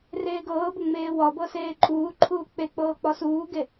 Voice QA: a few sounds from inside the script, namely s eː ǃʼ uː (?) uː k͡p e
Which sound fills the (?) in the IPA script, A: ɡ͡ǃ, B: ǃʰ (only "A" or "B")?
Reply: B